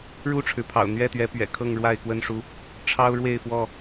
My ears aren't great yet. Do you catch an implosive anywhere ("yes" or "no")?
no